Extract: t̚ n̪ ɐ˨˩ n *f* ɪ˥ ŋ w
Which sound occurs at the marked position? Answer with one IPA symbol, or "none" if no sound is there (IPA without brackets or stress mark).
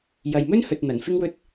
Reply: f